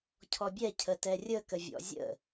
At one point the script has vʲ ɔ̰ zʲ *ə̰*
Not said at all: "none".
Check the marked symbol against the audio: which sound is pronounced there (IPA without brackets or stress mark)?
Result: ə̰